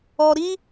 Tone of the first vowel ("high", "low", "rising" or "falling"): low